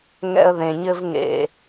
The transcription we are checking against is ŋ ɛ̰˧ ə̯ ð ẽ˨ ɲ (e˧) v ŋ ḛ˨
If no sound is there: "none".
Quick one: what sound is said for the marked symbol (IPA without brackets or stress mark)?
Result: ɘ˧